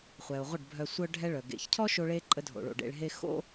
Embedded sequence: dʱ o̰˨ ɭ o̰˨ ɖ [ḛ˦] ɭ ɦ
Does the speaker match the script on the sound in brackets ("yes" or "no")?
no